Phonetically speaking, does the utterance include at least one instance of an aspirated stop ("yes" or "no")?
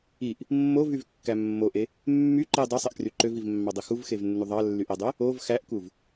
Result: no